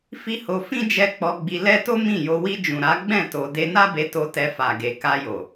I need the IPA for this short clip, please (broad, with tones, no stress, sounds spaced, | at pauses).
f i˦ h o˧ f ĩ˦ d͡ʒ ɛ˧ k͡p ɔ˧ ɡ͡b i˧ l ɛ˦ t o˦ m ĩ˦˨ j o˧ w i˧ d͡ʒ ũ˨ ɾ a˨˦ ɡ͡b ɛ̃˦˨ t o˧ d e˧ n a˦ b e˧ t o˧ t ɛ˧ f a˨ ɡ e˨ k a˧ j o˨